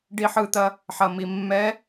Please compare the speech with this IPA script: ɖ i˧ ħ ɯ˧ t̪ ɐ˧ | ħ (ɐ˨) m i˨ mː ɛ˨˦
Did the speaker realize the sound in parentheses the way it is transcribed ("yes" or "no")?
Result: yes